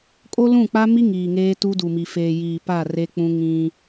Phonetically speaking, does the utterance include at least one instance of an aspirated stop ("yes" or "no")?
no